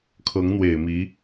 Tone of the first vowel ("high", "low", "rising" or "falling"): rising